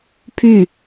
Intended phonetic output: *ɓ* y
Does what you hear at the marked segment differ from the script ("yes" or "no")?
yes